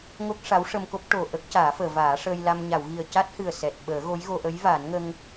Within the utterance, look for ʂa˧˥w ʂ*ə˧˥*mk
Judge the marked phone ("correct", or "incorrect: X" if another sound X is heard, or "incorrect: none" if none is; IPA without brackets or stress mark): incorrect: ə˧